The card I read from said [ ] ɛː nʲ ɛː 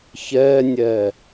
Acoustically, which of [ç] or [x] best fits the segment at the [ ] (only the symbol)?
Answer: ç